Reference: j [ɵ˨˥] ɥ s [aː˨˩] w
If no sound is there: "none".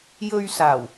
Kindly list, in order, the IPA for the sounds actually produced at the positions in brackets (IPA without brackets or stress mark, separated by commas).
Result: ɵ˧, aː˨˩